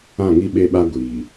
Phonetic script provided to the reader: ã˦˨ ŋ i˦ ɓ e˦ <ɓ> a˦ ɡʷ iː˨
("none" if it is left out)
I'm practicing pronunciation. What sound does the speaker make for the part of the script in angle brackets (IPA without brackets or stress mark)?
ɓ